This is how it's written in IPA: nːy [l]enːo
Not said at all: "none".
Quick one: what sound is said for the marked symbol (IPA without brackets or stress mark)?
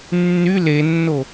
l